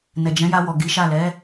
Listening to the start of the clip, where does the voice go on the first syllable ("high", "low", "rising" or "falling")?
low